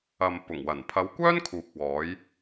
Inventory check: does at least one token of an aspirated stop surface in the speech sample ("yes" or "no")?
yes